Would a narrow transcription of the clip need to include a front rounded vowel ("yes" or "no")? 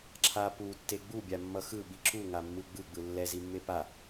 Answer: no